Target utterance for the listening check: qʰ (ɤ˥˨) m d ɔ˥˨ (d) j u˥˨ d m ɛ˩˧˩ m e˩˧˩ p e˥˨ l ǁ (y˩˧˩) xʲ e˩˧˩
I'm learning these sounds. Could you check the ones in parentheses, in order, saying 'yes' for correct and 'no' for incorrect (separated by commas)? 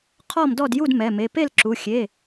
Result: no, yes, no